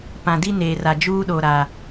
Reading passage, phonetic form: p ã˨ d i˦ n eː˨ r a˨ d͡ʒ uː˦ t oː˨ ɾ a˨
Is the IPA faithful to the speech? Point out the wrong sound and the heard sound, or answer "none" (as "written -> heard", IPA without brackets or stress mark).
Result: t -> ɗ